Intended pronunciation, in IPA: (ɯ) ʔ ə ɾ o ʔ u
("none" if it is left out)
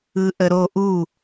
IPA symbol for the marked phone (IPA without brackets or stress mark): ɯ